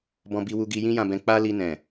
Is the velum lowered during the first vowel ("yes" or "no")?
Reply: yes